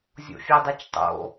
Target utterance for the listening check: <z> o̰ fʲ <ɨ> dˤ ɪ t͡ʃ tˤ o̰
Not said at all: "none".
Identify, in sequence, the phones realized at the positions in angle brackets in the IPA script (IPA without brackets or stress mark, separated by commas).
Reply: zʲ, e